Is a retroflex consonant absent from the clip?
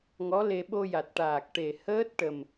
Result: no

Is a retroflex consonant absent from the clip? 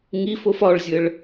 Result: no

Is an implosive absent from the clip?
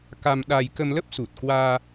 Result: no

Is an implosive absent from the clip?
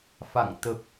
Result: yes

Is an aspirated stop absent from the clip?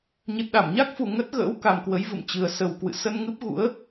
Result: yes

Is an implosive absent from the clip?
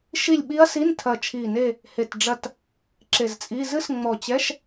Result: no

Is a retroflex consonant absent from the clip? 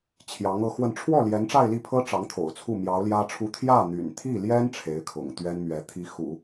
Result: no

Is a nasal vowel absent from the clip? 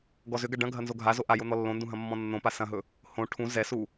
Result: no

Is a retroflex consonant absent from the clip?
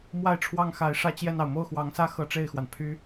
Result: no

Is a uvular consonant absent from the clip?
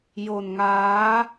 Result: yes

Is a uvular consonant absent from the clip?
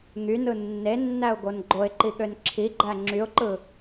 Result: yes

